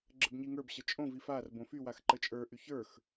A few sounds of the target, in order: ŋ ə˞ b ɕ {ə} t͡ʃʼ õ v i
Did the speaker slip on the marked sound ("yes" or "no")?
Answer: no